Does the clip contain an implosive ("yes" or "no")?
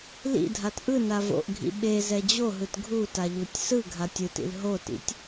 yes